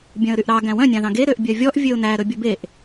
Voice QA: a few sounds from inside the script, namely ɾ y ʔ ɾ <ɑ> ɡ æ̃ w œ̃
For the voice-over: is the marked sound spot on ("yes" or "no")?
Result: yes